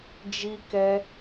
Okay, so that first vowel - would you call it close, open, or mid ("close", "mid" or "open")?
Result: close